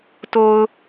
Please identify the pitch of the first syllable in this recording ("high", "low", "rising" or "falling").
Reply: low